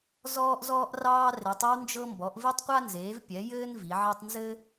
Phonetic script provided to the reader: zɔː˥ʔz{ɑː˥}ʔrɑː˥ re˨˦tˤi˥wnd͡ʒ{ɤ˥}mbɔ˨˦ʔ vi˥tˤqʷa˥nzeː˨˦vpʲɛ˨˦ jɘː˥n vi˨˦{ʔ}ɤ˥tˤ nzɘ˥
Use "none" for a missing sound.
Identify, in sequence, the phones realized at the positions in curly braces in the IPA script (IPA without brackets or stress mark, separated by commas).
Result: ɔː˥, ɤ˥, ʕ